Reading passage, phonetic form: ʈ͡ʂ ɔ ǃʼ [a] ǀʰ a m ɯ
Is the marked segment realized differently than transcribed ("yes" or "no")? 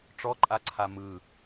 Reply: no